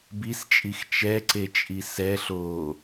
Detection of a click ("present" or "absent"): present